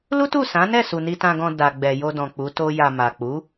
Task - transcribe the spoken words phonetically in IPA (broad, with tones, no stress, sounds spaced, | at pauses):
l u˦ t u˦˨ s ã˨˦ n ɛ˦˨ s u˨ n i˧ t ã˧ ɡ ɔ̃˧ d a˨ ɡ͡b ɛ˨ j o˧ d ɔ̃˨ k͡p u˨˦ t o˦ j a˧ m a˨ k͡p u˨˦